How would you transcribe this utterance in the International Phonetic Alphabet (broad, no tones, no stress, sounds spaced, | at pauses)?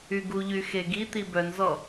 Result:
y ɡ u ʎ y x e ɡ i t̪ i b œ n z ɔ